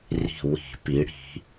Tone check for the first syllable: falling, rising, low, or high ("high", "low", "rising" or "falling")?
falling